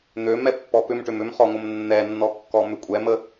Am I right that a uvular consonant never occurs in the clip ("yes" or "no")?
no